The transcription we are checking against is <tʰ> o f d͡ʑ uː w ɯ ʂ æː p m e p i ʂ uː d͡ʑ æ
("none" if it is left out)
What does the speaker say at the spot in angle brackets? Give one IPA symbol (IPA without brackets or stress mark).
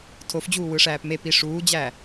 tʰ